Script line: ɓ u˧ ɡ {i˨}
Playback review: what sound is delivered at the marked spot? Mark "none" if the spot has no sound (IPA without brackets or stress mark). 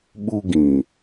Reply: ĩ˨